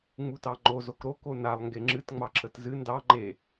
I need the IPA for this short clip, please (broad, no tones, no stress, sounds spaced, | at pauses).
ŋ͡m u t ɑ ŋ͡ǃ o z o k ɾ o k o n a lˠ ŋ ɡ e ŋ͡ǁ ɨ t ŋ͡m ɑ ǁ ə t z ɨ n d ɑ ŋ͡ǃ e